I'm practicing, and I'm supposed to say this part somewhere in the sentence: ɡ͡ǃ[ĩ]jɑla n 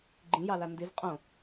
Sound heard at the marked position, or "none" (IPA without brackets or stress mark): ĩ